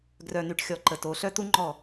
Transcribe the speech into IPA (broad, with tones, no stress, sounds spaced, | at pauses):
ɡ r œ˨ n y˨ ʈ xʲ ɔ˨ ǃ ə˨ t o˨˦ ɬ œ˦ t̪ u˦ ŋ͡ǃ ɔ˦˨